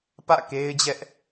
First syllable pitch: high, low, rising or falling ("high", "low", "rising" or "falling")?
falling